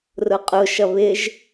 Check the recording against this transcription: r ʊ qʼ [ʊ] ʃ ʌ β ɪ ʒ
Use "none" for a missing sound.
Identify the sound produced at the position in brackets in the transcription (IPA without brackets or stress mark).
ʊ